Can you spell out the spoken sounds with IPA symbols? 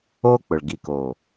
o˦ k͡p ʊ˨ ɭ ɡ i˨ k o˨

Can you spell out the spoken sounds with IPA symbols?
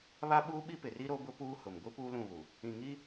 β a˦ ɓ uː˦ ɓ i˦ p ɪ˨ r i˦ ɾ o˦ b ʊ˦ p uː˦ h ʊ˨ m ɡʷ i˦ p uː˦ l ũ˦˨ β u˨ | ĩ˨ ŋ i˦

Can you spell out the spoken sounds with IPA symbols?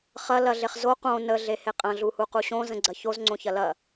χ ɐ l ɐ ɮ e χ z o q õ n ə ɮ e h e qʼ ɐ̃ ɮ u h u q u ɕ õ z ə̃ ɡ͡ǀ ɐ ç o z ŋ͡ǀ õ ç ɐ l ɐ

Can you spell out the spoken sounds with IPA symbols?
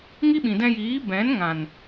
ŋ i˦ ɓ ĩ˨ d ɛ̃˧ j iː˨˦ b ɛ̃˨˦ n ŋ ã˨ n

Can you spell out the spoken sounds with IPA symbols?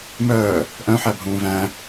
m œː | ʔ œ̃ ħ æ bʱ ũː v æ̃

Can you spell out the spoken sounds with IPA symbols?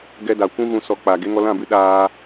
ɡ ɛ˧ d a˨ kʷ ũ˦ ɣ ũ˧ s ɔ˧ k͡p aː˨ ɡ e˦ ŋ ɔ˧ l ã˦˨ b ɨ˦ ɗ aː˧

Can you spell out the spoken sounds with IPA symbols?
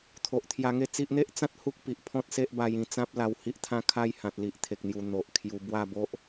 t̪ʰ o˨ ʔ t̪ʰ j a˧ ŋ e˥˧ t͡s i˦ ʔ n̪ e˦ ʔ t͡s ã˦ t̚ h u˦ k̚ p i˨ ʔ pʰ ɔ̃˦ t̚ s e˦ ʔ b a˧ j ĩ˨˩ t͡s ã˦ p̚ l a˧ w h i˦ ʔ t̪ʰ ã˦ kʰ a˥˧ j h ã˨ t̚ l i˨ ʔ t̪ʰ e˨ k̚ n̪ j u˨˩ n̪ o˨ ʔ kʰ j u˧ b w a˥˧ b o˦ ʔ

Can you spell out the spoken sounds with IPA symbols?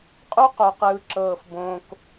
qʼ u˦ q o˨ q ɯː˨ ǁ ɤː˨ f b õː˨ k

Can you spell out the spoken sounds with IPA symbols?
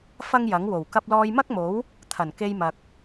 f ɐ˥ ŋ j ɐ˨˥ ŋ w o˨˩ w k ɐ˧ p̚ l ɔː˧ j m ɐ˥ k̚ m o˨˥ w | t̪ʰ ɐ˨˩ n k e˧ j m ɐ˨ k̚

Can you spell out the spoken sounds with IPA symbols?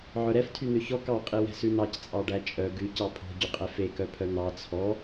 ʕ œ ɾ ɛ f tʰ y n̪ ø ç ɔ k ɑ qʼ i w ɛ̤ s ʉ n ɑ c t͡sʼ ɑ ɖ æ t͡ʃʼ œ ɡ ʉ c ɑ pʰ o̤ ɟ y qʼ ɛ f e k œ pʰ œ n̪ ɑ t͡sʰ ɔ

